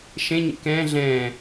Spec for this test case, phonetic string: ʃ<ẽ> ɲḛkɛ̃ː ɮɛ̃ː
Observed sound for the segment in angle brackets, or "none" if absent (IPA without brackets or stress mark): ẽ